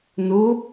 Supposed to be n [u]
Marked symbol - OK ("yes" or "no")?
yes